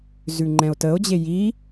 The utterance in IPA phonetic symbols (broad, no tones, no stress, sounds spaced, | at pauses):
z ʉ ŋ͡ǃ ɛ̃ o̯ t ə o̯ d͡ʑ e j i